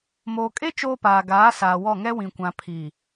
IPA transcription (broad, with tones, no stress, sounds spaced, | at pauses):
m oː˨ kʼ e˦ t͡ʃ oː˦ p aː˨ ɡ aː˨˦ s aː˨ w ɔ˦˨ ŋ ɛ˦ w ĩ˨ kʷ ã˨ pʰ i˨